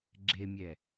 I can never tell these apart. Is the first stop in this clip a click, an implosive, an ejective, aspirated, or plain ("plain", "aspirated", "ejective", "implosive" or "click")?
click